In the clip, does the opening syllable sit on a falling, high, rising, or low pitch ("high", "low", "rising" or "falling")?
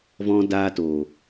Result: high